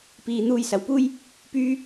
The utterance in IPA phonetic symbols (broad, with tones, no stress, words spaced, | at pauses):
piː˨ n̪uː˧jsɐ˨wpuː˥j | pyː˥